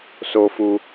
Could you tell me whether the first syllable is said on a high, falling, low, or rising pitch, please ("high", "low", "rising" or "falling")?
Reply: low